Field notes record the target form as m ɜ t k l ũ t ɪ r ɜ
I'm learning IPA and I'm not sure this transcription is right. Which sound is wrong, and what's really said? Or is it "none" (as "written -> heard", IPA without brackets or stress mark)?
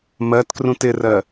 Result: l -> r